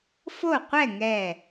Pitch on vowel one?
falling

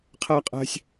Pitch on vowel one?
high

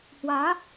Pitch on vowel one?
rising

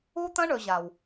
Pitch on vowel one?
high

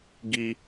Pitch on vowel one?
high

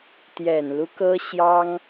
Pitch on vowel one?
low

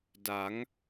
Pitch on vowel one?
rising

